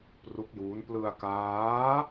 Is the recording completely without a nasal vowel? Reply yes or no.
yes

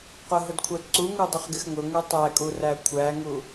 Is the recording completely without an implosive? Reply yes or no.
yes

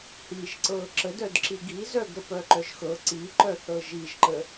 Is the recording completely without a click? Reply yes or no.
no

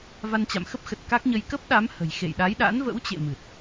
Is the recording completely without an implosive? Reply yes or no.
no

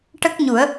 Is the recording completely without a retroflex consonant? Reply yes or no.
no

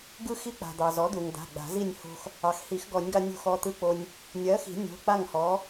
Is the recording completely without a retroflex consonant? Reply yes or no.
yes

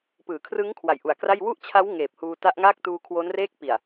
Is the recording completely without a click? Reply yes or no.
yes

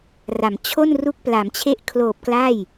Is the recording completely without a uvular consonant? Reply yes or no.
yes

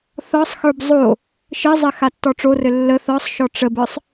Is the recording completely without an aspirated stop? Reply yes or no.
yes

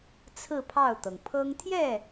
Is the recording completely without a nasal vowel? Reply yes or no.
yes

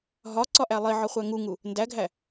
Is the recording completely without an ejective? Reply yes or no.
yes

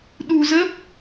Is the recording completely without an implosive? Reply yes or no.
no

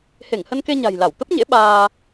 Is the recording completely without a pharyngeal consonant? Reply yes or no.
yes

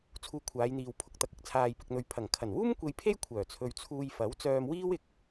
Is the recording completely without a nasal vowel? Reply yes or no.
yes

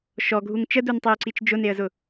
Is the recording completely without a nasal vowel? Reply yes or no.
yes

